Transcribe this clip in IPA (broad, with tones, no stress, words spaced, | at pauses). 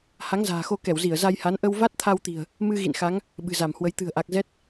ha˨˦ŋza̤ː˨˩xo˧ kɛ˧˩w zi˧˩ə̯za˧jha˨˦n ʔə˧wva˦˥t̚t̪ʰa˧wt̪i̤˨˩ə̯ | mɨ˧ ɣḭ˧˨nxa˨˦ŋ | ɓɨ̤˨˩za˧˩mhwə˨˦j t̪ɨ̤˨˩ə̯ʔa˨˩k̚ zɛ˦˥t̚